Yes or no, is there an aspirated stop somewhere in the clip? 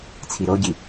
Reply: yes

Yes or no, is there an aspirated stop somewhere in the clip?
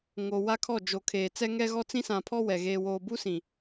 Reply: yes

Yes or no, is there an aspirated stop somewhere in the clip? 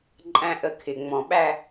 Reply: yes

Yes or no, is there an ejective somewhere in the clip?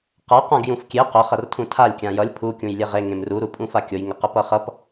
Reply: yes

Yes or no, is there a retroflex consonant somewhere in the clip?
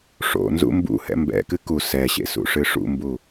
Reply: yes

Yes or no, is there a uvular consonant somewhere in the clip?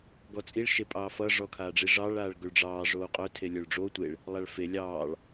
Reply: yes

